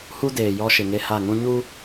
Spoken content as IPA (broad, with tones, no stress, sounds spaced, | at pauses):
h u˦ d eː˨ j ɔ˦ ʃ ɪ˨ ŋ e˦ h a˦˨ ŋ ũ˦ ɲ u˦